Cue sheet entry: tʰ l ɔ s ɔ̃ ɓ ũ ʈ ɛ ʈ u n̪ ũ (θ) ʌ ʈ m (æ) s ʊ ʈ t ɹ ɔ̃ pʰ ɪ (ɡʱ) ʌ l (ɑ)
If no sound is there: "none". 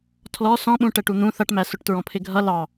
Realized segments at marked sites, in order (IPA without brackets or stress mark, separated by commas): θ, æ, ɡʱ, ɑ